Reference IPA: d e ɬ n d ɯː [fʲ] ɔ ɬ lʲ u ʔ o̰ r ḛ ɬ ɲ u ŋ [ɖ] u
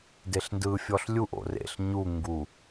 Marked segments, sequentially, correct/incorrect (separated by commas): correct, incorrect